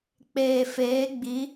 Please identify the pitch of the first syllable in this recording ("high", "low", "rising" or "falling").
low